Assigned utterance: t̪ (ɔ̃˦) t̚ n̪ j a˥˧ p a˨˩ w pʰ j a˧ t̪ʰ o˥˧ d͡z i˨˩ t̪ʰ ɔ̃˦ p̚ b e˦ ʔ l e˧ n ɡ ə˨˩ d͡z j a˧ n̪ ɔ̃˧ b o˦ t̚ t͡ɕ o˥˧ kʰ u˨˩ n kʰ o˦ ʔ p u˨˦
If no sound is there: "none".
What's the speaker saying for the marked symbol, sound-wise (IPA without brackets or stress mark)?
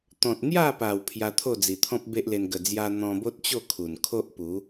ɔ̃˨